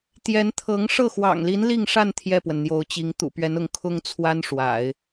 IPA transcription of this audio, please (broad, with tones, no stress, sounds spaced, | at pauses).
t̪ j ɛ˧˥ n t̪ʰ ɤ˧˥ ŋ ʂ ɤ˥˩ x w ɑ̰˨˩ ŋ l i˧˥ n l i˥˧ ŋ ʂ a˥˧ n t̪ʰ j ɛ˥˩ p w ə˩ n n̪ j o˧˥ ʊ̯ t͡ɕ i˧˥ ŋ t̪ ṵ˨˩ p ɥ ɛ˧˥ n ʊ˧˥ ŋ kʰ ʊ˥ ŋ t͡sʰ w a˥ n ʂ w a̰˨˩˦ ɪ̯